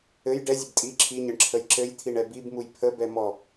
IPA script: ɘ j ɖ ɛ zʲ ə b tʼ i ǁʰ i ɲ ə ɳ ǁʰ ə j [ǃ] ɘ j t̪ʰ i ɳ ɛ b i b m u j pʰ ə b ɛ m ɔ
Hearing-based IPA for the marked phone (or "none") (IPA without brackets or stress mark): ǁ